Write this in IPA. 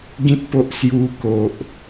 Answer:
ɡĩ˦t̚po˦ʔ sju˧ko˨ʔ

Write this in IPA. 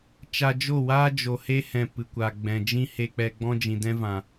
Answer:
t͡ʃa˧d͡ʒo˦˨waː˦ d͡ʒo˨he˦hɛ̃˨ pɨ˨kʷa˨ ɡ͡bɛ̃˨d͡ʒĩ˦ he˧k͡pɛ˧ɡ͡bɔ̃˦ d͡ʒĩ˨dɛ̃˦vã˨

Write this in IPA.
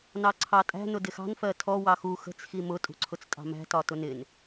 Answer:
nɑǀʰɑtʼæ̤ nʊdɪxɑ̤n fɜtʰɔ wɑxu xə̤t͡s ximʊ tʼṳǀʰʊt͡stʼɑ̤mæ̤ tɒtʊnɪn

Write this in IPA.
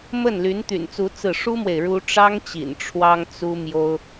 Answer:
mə˥˩nly˧˥n t̪y̰˨˩nt͡su˧˥ t͡sɹ̩˥˩ ʂu˥mwe˨ɪ̯ ɻu˥ ʈ͡ʂɑ˥ŋt͡ɕḭ˨˩n ʈ͡ʂʰwɑ˥ŋt͡su˥ mjo˥ʊ̯

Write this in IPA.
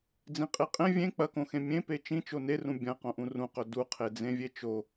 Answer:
d͡zĩqʼeqʼẽ vʲẽ k͡pɐkõxẽ mʲẽpe t͡ʃĩt͡ʃo nerũ bʲɐ̃ qõʔũrũqɵ duqʰed͡zẽvʲe t͡ʃo

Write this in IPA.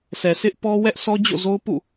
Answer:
sʰɛ˨sɪ˦ʔ pɔ˦wɛ˦ʔ sʰɔ˦d͡ʑo̰˦˨zo˦ʊ̯ pṵ˦˨

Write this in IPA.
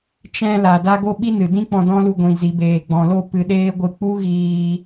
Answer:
t͡ʃɛ̃˧ la˨da˧ ɡo˧ɓi˧ nɨ˨dĩ˦ k͡pɔ̃˧ dɔ̃˦lu˧ ɡʷĩ˨zi˨ beː˨ɡ͡bɔ̃˨lo˦˨ pɨ˧ɗeː˦ɡʷɨ˧ k͡pu˦ɣiː˧

